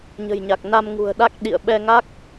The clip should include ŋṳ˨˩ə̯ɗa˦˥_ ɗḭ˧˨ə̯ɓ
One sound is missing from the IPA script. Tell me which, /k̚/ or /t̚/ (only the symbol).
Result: k̚